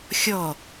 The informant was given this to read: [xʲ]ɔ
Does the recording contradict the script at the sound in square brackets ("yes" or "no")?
no